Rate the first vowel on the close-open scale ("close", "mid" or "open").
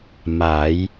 open